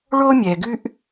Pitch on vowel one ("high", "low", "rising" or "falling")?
high